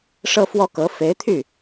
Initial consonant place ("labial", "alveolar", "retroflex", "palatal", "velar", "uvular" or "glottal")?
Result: retroflex